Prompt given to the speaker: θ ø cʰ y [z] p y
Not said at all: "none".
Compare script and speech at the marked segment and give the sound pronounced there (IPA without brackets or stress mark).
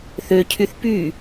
θ